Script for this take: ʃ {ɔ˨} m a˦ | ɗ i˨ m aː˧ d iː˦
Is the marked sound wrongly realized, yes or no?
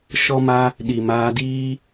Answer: yes